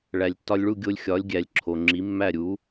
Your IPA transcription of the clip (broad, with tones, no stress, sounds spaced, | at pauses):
ɭ æ˩ lʲ tː ɒ˧ lʲ ɭ u˥˩ ɡʲ o˧ lʲ xʲ ɒ˩˥ lʲ ɡʲ æ˩ lʲ ǁʰ o˩ ŋ͡ǁ i˩˥ mː æ˥˩ ɾʲ u˩˥